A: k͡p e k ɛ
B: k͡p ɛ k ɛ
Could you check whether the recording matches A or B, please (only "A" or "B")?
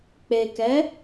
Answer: A